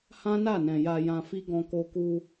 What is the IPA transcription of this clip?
h ã˦ n a˦˨ n ɛ̃˨ j a˧ j ã˧ f i˦ ɡ ɔ̃˧ k o˧ k u˧

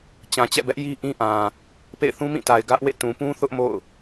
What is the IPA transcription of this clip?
t͡ɕ ã˨ t͡ɕ ɛ̰˦˨ b ɛ˦ ʔ j i˦ ʔ ĩ˦ ʔ ã˨ | p ḛ˦˨ ɪ̯ θ ũ˦ m ĩ˦˨ t a˨ ɪ̯ ɡ ä˦ ʔ w ḛ˦˨ t ũ˨ p ũ˦ θ ʊ˦ ʔ m o̰˦˨ ʊ̯

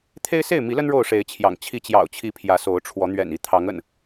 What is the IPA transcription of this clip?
t̪ʰ e˦ ɪ̯ s e˥˨ ɪ̯ m i˨˦ l ə˦ n ɻ o˥˨ ʊ̯ ʂ e˨˦ ɪ̯ t͡ɕʰ j ɑ̰˨˩ ŋ t͡ɕʰ i˨˦ t͡ɕ j ɑ̰˨˩ ʊ̯ t͡ɕʰ i˨˦ pʰ j ä˨˦ s o˨˦ ʊ̯ ʈ͡ʂʰ w ɔ˨˦ n̪ ɥ ɛ̰˨˩ n i˥˨ t̪ʰ ɑ˨˦ ŋ ə̰˨˩ n

